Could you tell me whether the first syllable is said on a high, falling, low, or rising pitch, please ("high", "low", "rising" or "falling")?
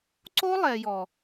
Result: high